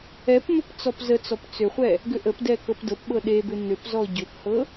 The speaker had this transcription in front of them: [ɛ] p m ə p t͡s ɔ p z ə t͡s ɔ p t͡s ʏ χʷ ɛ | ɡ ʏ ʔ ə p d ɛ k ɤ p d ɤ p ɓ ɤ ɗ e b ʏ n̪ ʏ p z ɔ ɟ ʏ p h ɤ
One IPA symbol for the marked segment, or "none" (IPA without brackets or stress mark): ɛ